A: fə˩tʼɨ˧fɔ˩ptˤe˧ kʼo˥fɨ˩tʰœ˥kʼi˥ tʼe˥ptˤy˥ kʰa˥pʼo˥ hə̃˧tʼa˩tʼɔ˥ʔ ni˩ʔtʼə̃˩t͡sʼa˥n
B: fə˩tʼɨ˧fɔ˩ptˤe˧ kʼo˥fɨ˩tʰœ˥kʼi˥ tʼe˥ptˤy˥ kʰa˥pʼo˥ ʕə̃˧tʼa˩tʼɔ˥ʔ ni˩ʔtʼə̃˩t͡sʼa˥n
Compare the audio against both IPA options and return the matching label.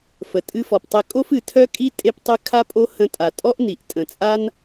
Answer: A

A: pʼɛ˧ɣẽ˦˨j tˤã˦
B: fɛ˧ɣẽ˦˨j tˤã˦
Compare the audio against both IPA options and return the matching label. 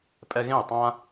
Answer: A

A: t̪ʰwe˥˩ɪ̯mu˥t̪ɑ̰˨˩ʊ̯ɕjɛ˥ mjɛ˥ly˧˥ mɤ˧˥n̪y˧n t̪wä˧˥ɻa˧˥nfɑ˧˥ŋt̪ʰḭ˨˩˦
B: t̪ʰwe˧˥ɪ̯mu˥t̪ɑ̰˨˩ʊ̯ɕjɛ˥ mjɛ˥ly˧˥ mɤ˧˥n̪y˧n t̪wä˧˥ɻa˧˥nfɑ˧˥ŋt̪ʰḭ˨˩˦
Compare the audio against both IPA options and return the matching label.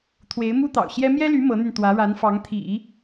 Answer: B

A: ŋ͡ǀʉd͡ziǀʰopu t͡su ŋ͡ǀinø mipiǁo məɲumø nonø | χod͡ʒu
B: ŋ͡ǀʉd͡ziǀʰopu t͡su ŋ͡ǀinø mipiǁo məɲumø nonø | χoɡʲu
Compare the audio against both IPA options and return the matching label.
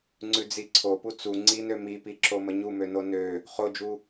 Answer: A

